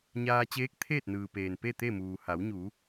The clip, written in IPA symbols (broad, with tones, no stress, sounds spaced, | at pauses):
ɲ aː˧ t͡ɕ eː˧˥ k̚ t̪ʰ eː˥˨ t̚ n ɯː˩ p eː˩ n p e˥˨ t̪ e˥˨ m uː˩ h a˩˧ w ɲ uː˩˧